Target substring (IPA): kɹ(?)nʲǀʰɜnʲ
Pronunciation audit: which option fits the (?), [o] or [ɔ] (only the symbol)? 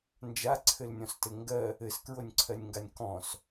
o